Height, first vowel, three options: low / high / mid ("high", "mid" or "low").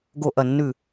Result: mid